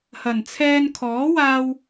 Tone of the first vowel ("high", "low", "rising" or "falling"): low